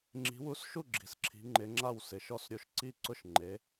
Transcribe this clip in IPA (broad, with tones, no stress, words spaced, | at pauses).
ŋ͡ǁi̤˨˦wu˨˦sʃu˥˩ ɡ͡ǁi̤˨˦sǁʰi̤˨˦ŋ͡ǃɪ˨˦ŋ͡ǁa˥˩w sɪ˨˦ʃɔ˥˩sɾʲo˥˩ʃ ǀi˥˧ǀʊ˥˩ʃŋ͡ǃe˨˦